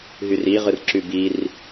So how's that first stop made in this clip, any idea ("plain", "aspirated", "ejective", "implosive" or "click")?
click